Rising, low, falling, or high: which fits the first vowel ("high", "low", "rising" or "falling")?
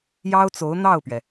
high